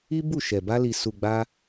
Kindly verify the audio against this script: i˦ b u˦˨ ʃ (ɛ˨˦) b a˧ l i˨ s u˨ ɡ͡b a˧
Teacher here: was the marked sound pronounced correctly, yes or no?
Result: no